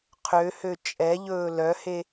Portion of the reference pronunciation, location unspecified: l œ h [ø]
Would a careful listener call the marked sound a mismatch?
yes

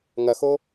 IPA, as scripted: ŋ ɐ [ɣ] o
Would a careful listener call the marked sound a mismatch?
yes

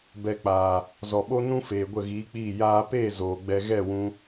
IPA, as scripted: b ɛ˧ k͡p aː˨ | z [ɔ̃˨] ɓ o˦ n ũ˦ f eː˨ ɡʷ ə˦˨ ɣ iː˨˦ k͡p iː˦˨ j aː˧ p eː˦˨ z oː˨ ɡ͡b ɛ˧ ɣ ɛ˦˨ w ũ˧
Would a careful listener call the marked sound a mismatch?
yes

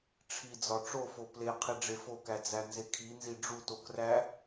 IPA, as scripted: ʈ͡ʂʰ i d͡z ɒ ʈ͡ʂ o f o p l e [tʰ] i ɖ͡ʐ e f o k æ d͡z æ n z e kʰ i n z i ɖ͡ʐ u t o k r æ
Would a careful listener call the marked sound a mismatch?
yes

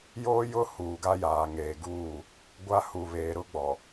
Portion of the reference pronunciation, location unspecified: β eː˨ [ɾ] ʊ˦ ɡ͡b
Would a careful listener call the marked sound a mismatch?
no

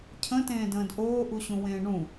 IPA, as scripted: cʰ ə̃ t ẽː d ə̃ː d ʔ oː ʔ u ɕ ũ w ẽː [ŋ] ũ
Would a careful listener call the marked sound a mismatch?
yes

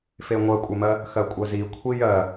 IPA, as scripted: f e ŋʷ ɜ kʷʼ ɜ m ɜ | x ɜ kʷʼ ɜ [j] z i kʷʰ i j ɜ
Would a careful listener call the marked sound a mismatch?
yes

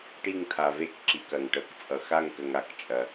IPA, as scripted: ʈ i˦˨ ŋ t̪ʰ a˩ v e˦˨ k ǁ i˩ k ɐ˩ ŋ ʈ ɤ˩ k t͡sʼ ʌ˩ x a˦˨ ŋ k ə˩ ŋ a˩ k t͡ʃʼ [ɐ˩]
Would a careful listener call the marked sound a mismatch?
no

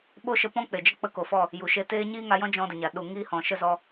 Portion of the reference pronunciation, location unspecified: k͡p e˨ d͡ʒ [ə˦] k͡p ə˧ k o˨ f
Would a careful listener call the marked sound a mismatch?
no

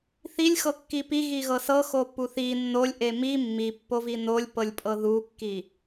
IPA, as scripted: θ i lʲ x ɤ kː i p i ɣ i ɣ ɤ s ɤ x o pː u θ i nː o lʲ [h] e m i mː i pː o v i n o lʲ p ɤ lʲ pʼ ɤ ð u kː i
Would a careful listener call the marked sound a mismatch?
yes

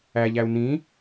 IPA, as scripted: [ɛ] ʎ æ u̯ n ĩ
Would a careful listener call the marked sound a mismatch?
yes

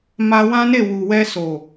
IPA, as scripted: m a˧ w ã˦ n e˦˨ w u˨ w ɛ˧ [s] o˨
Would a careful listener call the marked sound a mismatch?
no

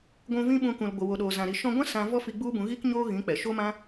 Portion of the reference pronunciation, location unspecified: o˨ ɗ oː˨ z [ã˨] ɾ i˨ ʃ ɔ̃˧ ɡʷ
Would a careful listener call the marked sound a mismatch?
no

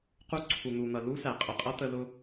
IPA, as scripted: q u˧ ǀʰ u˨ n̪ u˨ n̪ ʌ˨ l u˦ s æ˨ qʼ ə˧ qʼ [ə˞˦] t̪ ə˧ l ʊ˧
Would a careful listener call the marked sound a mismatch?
yes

